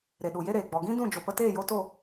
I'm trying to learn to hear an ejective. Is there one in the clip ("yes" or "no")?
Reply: no